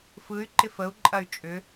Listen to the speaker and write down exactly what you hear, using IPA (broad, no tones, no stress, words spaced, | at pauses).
fɯy̯ ǃɪfəu̯ǃʼɐy̯ t͡ʃʼʏ